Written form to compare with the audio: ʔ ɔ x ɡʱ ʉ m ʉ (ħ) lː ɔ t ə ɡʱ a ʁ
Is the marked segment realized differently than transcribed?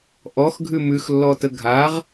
yes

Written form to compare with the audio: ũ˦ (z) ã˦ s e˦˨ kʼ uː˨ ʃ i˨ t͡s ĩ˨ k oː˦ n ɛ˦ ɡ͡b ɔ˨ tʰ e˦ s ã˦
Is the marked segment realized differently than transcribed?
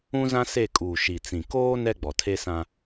no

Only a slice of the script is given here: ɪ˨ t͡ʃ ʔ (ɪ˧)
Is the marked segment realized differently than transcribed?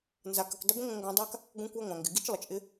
no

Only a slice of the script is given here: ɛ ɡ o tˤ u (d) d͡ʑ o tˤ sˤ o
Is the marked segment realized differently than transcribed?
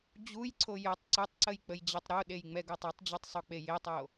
yes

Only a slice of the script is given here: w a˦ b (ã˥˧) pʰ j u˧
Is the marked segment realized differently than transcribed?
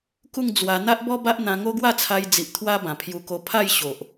yes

